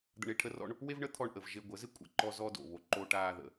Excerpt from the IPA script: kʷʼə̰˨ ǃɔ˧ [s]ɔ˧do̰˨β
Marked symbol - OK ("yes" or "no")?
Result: no